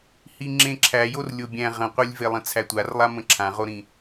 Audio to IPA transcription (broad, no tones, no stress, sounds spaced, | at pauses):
h i ŋ͡ǁ ẽ ǁʰ æ j o r lʲ o bʲ æ̃ ʁ ə̃ qʷ e lʲ v e lˠ ə̃ t͡sʰ æ tʷ a r lˠ a m ə̃ ǁʰ ã ʁ o ɾ ĩ